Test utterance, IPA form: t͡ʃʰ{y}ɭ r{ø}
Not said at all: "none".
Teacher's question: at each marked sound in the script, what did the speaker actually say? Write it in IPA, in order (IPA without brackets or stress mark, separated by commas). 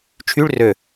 y, ø